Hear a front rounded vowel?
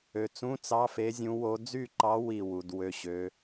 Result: yes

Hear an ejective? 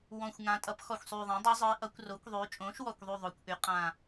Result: yes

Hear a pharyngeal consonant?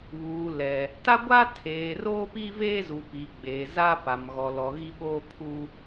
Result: no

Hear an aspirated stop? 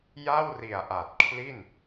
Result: yes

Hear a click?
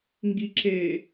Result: yes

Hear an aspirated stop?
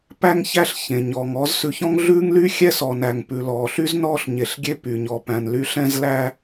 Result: no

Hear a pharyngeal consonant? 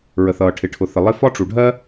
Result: no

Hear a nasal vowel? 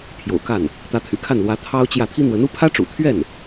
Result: no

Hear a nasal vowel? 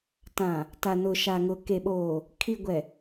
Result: yes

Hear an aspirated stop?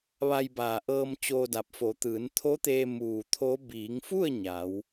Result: yes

